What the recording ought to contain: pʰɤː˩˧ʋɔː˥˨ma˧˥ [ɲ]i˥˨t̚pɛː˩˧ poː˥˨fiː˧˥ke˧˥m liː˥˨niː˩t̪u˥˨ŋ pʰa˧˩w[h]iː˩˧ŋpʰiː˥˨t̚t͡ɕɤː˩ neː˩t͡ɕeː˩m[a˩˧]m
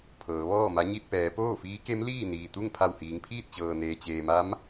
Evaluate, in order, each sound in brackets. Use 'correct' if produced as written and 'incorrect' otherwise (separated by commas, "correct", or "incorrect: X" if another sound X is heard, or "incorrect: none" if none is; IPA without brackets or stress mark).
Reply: correct, correct, incorrect: a˧˥